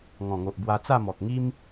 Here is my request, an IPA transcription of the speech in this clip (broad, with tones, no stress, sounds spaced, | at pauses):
ŋ ɔ̃˨˩ ŋ o˨ ʔ b w a˧ t͡s a˥˧ m ɔ˨ k̚ ŋ i˦ m